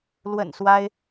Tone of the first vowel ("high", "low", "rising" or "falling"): low